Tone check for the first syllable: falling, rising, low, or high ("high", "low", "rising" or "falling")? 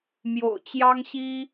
low